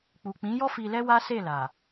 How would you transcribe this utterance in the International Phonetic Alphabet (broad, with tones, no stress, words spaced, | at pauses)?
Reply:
k͡pu˨k͡pĩ˨˦jɔ˦ fi˧lɛ˦wa˦ se˦˨la˨